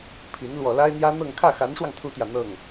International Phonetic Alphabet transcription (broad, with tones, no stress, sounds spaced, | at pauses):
pʰ i˧˥ n l w ɔ˨˩ l a˥ ɪ̯ n̪ j ä˥ n̪ ɤ˥˧ ŋ kʰ ä˥˩ x a˧˥ n ʂ w ɑ˧ ŋ t̪ʰ u˥ t̪ j ä˨ n̪ ɤ˥˩ ŋ